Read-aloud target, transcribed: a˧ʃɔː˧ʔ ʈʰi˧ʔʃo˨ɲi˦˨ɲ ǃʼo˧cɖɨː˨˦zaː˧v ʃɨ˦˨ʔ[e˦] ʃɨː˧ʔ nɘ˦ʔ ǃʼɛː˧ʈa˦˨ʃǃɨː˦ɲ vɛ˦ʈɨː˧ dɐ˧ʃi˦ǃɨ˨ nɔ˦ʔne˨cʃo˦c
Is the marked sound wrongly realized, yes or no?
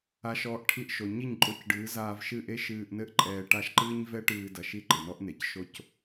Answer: no